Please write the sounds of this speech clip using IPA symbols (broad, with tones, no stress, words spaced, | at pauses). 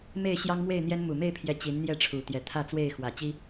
me˥˨ɪ̯ɕjɑ˦ŋmwe˥˨ɪ̯n̪jɛ˦n mu˨˩me˥˨ɪ̯pʰjɛ˨˦ t͡ɕi˨˦nn̪jɛ˥˨ʈ͡ʂʰu˨˩ t̪jɛ˨˦t̪ʰä˥˨t͡swe˥˨ɪ̯ xwä˨˩ t͡ɕi˦